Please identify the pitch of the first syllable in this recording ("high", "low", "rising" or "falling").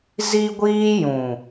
high